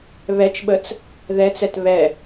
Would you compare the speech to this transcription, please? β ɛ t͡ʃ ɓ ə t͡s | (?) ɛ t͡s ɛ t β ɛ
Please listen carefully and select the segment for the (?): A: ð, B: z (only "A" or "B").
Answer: A